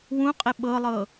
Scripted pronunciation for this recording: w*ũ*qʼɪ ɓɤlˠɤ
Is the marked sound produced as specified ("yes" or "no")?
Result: yes